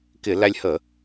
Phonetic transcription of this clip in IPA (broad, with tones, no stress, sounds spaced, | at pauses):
k ɪ˧˩˧ l æ˧ lʲ h ə˧˩˧